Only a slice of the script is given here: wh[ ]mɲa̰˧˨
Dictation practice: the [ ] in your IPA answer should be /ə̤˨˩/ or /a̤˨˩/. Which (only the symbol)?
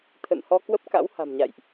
a̤˨˩